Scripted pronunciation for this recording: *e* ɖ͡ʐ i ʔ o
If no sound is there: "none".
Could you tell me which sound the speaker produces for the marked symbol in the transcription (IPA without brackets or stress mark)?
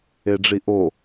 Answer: e